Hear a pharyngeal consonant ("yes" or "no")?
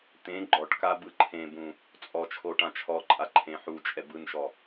yes